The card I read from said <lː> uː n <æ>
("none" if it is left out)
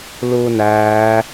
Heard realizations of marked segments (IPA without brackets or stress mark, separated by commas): l, æː